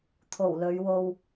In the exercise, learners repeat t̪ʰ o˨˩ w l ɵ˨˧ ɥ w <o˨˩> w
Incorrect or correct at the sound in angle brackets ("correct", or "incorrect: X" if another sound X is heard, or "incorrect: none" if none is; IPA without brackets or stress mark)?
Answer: incorrect: o˧